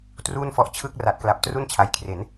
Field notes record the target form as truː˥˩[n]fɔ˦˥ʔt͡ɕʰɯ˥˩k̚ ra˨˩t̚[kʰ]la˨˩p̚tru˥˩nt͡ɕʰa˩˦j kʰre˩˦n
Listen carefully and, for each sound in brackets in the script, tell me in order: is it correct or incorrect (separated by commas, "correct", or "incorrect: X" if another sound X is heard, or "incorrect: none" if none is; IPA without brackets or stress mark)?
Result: correct, incorrect: k